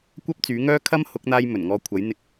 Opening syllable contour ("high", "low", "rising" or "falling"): high